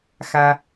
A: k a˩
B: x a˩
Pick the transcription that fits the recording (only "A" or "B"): B